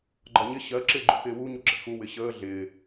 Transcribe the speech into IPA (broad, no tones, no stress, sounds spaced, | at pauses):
ɡ͡ǃ ɒ ɲ ɪ ɕ ɜ ǁ ɪː ɡ͡ǃ ṵ x ɪː w u ɲ u ǁ ɛ̰ x u w ɪ ɕ əː ɮ ɪː